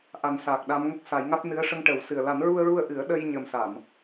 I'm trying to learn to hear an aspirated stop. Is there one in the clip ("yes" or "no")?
no